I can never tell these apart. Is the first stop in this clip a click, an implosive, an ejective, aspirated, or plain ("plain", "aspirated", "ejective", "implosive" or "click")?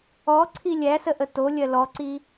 click